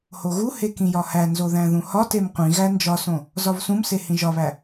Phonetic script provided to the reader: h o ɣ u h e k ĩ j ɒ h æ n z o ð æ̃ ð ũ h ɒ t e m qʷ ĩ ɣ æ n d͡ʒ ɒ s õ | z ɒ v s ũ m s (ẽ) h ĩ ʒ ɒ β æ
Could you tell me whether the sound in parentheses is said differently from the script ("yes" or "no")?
yes